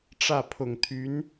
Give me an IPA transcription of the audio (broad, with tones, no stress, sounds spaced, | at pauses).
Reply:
ʈ͡ʂ ä˥˩ pʰ ʊ˨˩ ŋ t̪ʰ y˧˥ n